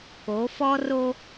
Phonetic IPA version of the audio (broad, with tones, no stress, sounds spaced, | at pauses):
k o˨˦ f ɔ˦ r o˦